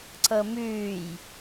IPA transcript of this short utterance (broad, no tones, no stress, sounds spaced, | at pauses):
ǀ ɤ m ʉː j